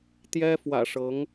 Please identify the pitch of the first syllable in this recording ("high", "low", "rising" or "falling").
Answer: high